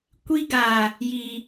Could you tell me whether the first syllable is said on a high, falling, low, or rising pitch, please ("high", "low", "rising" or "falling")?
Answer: high